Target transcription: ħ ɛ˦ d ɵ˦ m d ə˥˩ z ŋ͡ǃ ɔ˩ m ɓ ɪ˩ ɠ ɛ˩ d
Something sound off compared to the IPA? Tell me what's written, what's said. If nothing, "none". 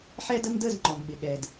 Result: ɵ˦ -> ə˦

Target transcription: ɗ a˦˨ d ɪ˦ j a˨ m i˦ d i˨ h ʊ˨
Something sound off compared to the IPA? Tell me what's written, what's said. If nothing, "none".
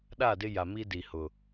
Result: none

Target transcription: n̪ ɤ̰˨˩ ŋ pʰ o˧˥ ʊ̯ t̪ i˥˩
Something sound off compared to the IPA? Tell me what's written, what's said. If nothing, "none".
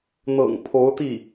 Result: none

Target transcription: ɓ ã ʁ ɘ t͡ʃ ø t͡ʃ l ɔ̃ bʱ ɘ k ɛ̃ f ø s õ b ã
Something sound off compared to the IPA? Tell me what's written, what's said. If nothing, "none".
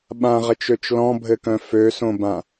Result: ɛ̃ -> œ̃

